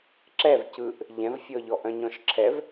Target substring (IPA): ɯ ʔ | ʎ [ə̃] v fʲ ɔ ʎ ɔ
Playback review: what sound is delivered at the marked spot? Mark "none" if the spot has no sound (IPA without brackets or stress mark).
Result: ɛ̃